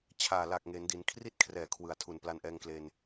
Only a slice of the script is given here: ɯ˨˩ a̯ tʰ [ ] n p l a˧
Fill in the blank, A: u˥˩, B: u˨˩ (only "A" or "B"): B